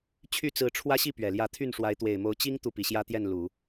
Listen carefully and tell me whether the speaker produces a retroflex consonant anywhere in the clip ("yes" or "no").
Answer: yes